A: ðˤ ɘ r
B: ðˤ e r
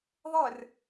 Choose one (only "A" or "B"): A